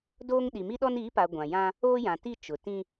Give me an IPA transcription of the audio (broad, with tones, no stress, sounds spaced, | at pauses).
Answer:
d oː˦ ŋ ɗ i˨ m i˦ ɗ ɔ˦ n iː˨˦ p a˨ ɡʷ ã˨ j ã˦ | oː˦ j ã˨ t i˦˨ t͡ʃ ʊ˨ t ĩ˦